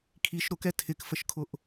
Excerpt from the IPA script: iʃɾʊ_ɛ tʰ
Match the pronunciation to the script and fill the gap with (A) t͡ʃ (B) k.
B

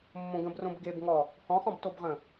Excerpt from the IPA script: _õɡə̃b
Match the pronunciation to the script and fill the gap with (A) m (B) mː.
B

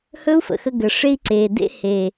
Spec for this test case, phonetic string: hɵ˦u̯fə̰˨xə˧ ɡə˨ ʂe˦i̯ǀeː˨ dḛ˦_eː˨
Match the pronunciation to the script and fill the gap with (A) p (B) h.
B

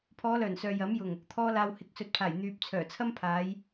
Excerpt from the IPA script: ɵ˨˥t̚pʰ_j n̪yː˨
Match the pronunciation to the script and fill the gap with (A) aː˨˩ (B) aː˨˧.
A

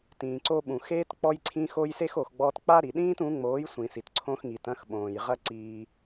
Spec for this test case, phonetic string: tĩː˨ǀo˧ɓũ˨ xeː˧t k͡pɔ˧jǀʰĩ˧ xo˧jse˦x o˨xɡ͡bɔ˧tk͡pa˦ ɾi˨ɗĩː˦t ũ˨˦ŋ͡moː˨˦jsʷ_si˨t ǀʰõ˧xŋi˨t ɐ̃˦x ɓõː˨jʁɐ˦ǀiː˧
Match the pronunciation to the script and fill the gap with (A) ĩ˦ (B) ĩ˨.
B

